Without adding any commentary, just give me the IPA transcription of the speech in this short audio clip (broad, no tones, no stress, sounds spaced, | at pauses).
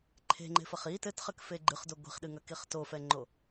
ǃʰ e̤ ŋ͡ǃ e̤ f ɐ χ i t ɘ t χ ɘ k f e ɡ͡ǃ ɨ χ d o ɡʷ i̤ χ ɗ ɨ ŋ ɐ k i χ t o f ɛ ŋ͡ǃ o